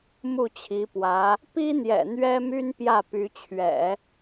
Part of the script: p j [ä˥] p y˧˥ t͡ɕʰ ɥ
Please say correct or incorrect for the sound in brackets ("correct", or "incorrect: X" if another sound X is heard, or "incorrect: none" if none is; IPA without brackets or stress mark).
incorrect: ä˥˩